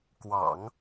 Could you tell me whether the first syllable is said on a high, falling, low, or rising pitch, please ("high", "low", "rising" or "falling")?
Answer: low